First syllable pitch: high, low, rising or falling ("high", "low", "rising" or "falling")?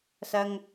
high